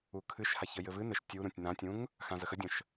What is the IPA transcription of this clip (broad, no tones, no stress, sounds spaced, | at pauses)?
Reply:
u kʰ ɨ ʃ h a ç ə j ɘ v ɨ n ɘ ʃ tʲ u ɾ ũ tʲ n ã tʲ ũ ŋ | x ã z ə x ə dʲ ə̃ ʃ